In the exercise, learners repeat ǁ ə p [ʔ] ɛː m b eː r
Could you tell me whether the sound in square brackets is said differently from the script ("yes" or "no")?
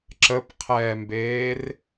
yes